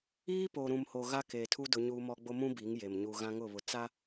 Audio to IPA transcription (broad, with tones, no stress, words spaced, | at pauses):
iː˦ po˨ɾũ˨mho˨ ɣa˦keː˨tʰu˦ dʊ˦ɲuː˦mɔ˦ ɡ͡bo˦mũ˦ bi˨˦ŋje˨m ɲu˨ ɣã˦ŋʊ˦˨βʊ˨ t͡sa˦